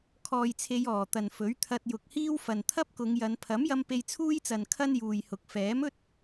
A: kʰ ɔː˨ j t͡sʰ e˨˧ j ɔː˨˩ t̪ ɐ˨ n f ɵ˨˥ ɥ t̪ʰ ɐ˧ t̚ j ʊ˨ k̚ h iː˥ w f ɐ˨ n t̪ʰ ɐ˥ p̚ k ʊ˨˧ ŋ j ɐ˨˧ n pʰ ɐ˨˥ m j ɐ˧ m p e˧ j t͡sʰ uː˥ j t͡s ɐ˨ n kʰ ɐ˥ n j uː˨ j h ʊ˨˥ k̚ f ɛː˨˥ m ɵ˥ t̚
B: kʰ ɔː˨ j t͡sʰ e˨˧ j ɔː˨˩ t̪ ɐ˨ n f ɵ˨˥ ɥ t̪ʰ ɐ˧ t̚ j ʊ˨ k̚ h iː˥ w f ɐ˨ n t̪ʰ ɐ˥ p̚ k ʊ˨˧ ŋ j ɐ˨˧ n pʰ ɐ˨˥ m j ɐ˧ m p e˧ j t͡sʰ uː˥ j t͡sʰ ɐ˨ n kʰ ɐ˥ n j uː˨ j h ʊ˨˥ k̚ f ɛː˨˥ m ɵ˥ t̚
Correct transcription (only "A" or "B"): A